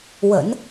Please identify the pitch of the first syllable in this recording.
low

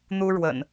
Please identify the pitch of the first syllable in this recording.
high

